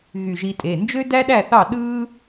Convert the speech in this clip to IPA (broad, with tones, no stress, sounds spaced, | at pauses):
ɣ y˧˩ ʒ i˧ tʼ e˩˧˩ n d͡ʒ ø˥ d æ˥ ɗ æ˥˨ θ ɑ˥˨ ɗ ɯː˥